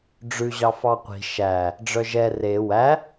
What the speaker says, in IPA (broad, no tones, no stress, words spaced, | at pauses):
ɖ͡ʐʉ ʑɑfɑqʷi̤ ʃæ | ɖ͡ʐœʒɛ re wæ